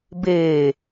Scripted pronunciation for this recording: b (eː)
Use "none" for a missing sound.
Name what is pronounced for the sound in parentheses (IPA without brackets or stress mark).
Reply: eː